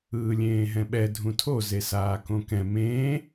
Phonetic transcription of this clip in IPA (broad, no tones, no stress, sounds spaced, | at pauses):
ɯː lʲ ẽː ɦ ɛ̃ ɓ ɛ dʱ ũ tʰ o z e s aː k õ k ɛ̃ m ẽː